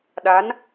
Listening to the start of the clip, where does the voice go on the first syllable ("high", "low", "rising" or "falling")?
rising